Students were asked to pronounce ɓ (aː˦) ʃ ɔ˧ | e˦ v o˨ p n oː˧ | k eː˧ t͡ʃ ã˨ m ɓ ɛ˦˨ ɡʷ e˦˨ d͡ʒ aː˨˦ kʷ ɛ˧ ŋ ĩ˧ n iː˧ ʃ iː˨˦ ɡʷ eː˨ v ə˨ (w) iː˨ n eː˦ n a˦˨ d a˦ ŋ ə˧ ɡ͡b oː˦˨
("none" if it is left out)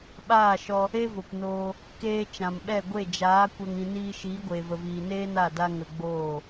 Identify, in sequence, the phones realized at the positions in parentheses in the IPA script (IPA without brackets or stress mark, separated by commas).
aː˦˨, v